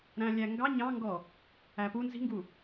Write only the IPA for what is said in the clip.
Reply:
ɾæ̃lʲæŋɡɑ ɲɑ̃ŋɡɔ | æpu nzi̤ŋɡu

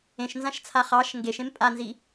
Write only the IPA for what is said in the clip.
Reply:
ẽʃnzãʃt͡sʰa χɑʃ ŋɡeʃẽm pʼanzi

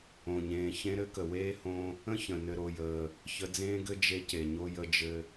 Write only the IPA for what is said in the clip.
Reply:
õ˨ɲẽː˨çẽ˦ ɾɘ˦kə˨weː˦hõ˦ | ə̃˦çə̃˨ nɘ˧ɾo˧jəː˧ | çə˧d͡zẽː˦ɡɘ˦ d͡ʒe˧ce˨ɲo˧ jə˦d͡ʒɘ˦

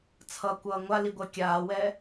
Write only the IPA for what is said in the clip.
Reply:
t͡sʰʌkʷʌː ŋʷaliɡʷɜ kʲaːwɛ

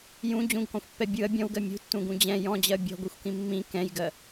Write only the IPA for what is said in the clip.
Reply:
jũ d͡ʑũɡkɔ̃xʷpːɛ bʲɯɐ̯ bʲɔ̃wɡɜ mʲṳtːũɡũ d͡ʑɛ̃ jɔ̃d͡ʑɜ bʲɔ̤ɡʷɛxʷkĩ mːĩ kɛ̃jɡɜ

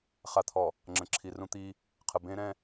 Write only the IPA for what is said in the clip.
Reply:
χa˨t̪ʰɔ˨ | ŋ͡ǁə̃˨ǁʰi˨rũ˦t̪i˦ | qʰə˨bẽ˦ ɾɛ̃˦

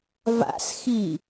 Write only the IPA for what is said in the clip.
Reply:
va̰sxi

